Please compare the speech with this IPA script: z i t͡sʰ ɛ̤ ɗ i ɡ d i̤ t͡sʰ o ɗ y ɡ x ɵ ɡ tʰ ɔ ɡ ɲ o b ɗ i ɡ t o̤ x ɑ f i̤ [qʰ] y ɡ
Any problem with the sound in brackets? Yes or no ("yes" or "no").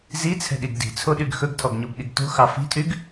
yes